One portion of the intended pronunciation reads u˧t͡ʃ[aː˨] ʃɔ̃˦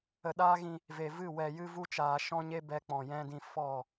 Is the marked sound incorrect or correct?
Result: correct